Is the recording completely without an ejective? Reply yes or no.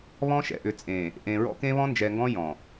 no